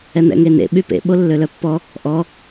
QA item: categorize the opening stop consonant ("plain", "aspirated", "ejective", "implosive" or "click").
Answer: implosive